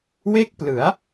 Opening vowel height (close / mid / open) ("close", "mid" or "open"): mid